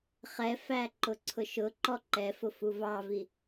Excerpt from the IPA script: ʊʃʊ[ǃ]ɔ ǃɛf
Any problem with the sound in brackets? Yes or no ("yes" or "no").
no